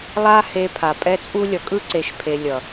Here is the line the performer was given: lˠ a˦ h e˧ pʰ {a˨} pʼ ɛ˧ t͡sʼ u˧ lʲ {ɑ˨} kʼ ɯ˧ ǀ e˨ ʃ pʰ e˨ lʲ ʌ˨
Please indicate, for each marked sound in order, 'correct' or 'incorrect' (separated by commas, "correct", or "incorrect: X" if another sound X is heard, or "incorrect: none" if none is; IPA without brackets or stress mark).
correct, incorrect: ʌ˨